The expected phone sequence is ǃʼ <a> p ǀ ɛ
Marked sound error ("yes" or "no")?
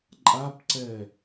no